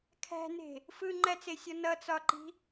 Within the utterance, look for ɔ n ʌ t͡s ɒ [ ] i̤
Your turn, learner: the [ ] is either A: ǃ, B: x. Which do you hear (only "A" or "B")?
A